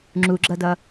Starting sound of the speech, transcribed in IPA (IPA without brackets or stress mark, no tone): ŋ͡ǁ